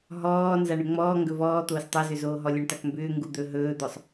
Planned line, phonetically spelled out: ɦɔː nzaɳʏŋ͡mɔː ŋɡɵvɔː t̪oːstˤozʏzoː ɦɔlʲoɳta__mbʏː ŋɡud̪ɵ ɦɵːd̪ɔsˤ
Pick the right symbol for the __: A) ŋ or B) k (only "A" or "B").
B